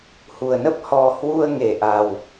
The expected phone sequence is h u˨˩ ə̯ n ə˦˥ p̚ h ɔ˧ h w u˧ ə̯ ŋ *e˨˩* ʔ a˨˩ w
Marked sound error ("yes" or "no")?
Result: no